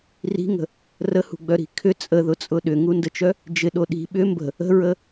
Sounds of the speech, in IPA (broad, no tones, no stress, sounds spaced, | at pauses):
r i̤ ŋ ə̤ | r ə h ṳ ɡ͡b œ ɾ i̤ kʰ ʏ t͡sʼ ə ð ʊ t͡sʼ ʊ ɗ ʏ ŋ u n d ə t͡ʃ œ | d͡ʒ ɪ ɗ o ɗ i̤ ɓ ʏ m b ə̤ | ə̤ ɹ ə